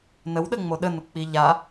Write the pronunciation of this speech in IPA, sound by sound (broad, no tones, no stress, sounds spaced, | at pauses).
n ə w ɗ ə ŋ͡m o ɗ ə n ʊ k͡p i ʎ a